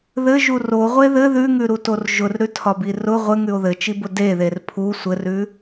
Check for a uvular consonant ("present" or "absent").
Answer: present